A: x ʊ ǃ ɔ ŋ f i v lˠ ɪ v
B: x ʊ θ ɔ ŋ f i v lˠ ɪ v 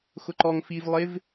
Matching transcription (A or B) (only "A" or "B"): A